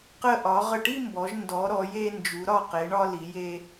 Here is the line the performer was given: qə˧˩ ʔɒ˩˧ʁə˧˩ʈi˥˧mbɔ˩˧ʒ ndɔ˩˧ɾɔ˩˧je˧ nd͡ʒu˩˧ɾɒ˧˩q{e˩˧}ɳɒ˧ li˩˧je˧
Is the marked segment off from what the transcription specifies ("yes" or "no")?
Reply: no